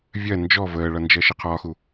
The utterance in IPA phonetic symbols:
vʲ ɜ n d͡ʒ ɔ v əː ɭ ʌ n d͡ʒ ɜ ʃ ə qʰ ɒ x u

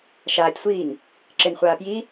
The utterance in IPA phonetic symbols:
ʃ aː tʲ sʷ iː ŋ | ǁ ɪ n χʷ aː p j i

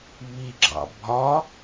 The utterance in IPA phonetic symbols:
β i ɡ͡ǁ ɑ̰ bʱ ɒ

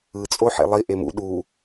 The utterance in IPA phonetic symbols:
ɯ t͡sʼ o ħ ḛ lˠ i ʔ e m ṵ ɗ u

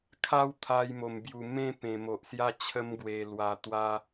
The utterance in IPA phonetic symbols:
kʰ a˥˧ w t̪ʰ a˧ j m o˨˩ m b j u˨˩ m ẽ˥˧ p ẽ˨˩ m o˨ ʔ s j a˥˧ t͡ɕʰ ə˦ m ɡ w e˧ l w a˧ t̪ w a˦

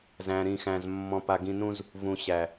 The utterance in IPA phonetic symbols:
z æ̃˨ ɾ ĩ˨ x æ̃˨ z mː ɔ̃˨ p a˨ ɡ ĩ˨ n ũ˦ z | v ũ˨ ɕ æ˨

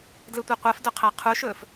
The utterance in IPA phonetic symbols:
d l ɯ tʷ e qʷ ɜ f d ɵ qʰ æ qʰ u ʃ ɵː f

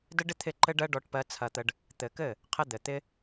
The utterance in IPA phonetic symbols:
d ɘ˦ ɖ ɪ˦ t̪ʰ ɪ˦˨ ǃ ɘ˦ ɖ ɜ˦ ɖ ɔ˦ ʈ p ɜ˦ t͡sʰ ɐ˧ t̪ ə˧ ɖ | t̪ ɘ˨ k ɘ˦˨ | qʰ ə˦ d̪ ɘ˨ t̪ ɪ˦

